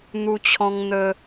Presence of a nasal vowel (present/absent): present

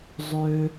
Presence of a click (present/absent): absent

